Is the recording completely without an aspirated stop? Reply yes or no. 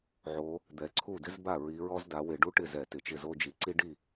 no